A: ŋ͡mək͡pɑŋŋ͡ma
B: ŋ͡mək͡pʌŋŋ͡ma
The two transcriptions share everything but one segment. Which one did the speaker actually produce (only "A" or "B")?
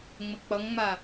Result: B